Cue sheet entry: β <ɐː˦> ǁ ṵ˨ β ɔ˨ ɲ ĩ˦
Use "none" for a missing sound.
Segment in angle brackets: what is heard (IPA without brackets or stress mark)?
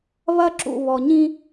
ɐ˦